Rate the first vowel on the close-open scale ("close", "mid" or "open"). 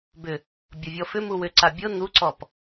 close